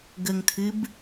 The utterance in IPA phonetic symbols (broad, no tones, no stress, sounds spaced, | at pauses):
ɡ ə ŋ tʰ ɨ b